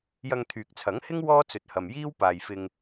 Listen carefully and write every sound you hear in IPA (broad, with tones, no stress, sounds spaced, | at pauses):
j ɐ˧ ŋ t̪ʰ yː˨ k̚ t͡sʰ ɐ˨˥ ŋ h ɪ˥ ŋ w ɔː˥ t͡s ɵ˨˥ t̚ h ɐ˨ m j iː˥ w p aː˨ j f ɪ˧ ŋ